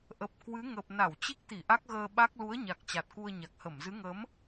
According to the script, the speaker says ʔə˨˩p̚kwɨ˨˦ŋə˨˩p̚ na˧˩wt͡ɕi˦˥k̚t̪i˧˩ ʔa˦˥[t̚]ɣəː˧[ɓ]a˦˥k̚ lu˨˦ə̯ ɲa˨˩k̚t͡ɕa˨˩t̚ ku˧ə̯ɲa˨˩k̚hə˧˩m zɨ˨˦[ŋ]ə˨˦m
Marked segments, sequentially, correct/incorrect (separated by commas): incorrect, correct, correct